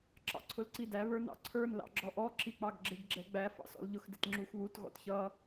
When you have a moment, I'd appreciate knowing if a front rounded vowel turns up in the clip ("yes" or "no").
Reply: no